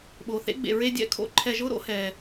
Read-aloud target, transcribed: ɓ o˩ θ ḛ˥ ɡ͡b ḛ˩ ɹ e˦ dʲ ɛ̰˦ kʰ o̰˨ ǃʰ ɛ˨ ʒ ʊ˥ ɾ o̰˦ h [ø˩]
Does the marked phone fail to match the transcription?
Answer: yes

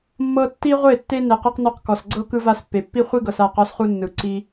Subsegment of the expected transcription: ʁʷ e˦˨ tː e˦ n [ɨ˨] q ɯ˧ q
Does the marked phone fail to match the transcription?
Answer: yes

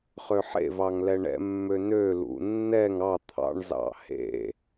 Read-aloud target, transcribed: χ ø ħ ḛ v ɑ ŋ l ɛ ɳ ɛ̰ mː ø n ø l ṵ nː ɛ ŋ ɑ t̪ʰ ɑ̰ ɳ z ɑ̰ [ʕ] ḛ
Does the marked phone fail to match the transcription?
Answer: yes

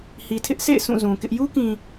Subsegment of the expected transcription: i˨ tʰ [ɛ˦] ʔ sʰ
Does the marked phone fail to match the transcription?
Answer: yes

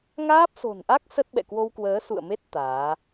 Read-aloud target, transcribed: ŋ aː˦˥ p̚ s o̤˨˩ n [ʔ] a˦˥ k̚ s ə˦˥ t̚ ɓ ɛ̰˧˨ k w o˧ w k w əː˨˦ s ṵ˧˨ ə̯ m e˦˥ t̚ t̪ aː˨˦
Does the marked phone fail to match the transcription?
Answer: no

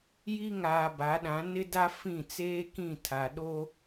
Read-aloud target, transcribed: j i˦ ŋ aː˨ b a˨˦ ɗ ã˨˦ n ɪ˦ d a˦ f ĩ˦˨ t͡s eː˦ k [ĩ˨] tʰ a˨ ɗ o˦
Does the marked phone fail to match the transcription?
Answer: yes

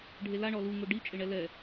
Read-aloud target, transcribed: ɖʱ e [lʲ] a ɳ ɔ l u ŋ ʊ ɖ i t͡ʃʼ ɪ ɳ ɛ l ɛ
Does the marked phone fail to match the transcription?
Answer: yes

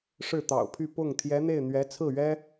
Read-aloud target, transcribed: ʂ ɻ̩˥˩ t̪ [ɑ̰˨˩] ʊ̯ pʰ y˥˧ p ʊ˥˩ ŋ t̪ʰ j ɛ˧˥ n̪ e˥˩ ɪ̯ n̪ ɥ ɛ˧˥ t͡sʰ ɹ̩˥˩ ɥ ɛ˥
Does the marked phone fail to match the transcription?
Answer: no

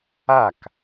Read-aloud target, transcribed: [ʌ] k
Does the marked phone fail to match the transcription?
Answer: yes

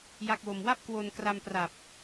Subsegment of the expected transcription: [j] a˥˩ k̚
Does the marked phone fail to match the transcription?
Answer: no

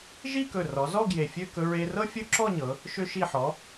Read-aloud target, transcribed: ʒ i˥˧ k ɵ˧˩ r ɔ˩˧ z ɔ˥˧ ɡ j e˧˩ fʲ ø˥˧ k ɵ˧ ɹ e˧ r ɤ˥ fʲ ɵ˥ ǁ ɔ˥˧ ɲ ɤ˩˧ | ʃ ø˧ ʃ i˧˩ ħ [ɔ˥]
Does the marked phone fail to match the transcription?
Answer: yes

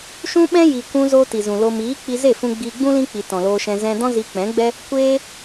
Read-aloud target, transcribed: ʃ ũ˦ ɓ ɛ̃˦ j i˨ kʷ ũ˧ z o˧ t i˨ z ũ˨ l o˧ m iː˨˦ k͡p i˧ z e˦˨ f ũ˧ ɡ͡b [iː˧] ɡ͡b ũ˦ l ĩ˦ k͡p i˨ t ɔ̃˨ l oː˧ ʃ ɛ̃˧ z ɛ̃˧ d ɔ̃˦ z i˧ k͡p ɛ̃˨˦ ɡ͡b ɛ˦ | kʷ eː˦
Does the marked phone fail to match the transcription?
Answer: no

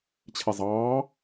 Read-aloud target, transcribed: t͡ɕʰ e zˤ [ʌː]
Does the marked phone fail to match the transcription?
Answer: yes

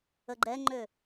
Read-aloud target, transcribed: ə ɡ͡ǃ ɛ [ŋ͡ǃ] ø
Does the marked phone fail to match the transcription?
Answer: no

